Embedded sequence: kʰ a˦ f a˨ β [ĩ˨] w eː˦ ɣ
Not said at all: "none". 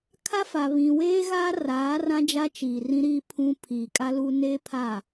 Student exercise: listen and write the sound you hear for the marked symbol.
ĩ˨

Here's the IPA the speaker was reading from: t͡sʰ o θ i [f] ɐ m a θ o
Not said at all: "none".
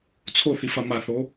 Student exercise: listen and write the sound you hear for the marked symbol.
f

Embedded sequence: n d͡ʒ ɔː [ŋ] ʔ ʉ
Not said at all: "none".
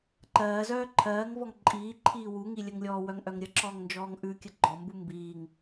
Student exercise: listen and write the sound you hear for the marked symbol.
ŋ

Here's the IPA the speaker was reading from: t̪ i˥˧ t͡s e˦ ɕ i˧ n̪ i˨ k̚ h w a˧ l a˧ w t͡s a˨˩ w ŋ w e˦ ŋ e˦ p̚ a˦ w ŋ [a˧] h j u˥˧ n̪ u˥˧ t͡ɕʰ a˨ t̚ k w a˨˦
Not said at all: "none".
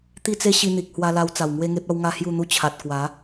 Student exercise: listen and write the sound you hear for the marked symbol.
a˦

